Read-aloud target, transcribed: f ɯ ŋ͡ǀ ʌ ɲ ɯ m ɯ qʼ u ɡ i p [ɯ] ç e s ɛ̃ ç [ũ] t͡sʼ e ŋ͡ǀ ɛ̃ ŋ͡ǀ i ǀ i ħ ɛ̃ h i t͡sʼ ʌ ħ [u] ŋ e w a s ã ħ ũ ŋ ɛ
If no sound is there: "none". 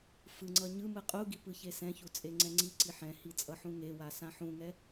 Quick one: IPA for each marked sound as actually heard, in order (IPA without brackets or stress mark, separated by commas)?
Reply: ɯ, u, ũ